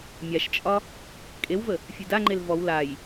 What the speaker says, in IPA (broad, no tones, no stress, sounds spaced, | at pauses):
mʲ a ʃ t͡ʃʼ ɒ | kʼ e w v ə | fʲ e d a ŋ͡ǃ e l v ɔ w l a j